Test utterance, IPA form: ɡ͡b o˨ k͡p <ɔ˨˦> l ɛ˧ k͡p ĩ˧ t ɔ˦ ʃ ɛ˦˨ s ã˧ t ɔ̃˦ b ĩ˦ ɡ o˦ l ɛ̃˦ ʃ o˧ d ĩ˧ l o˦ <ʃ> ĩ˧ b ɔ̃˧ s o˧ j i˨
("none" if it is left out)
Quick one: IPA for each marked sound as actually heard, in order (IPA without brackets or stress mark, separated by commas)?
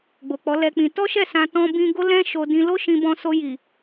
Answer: ɔ˨˦, ʃ